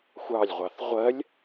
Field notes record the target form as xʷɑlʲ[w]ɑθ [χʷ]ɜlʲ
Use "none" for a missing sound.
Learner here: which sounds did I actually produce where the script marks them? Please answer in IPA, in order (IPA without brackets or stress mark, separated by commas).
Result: ʁʷ, ʁʷ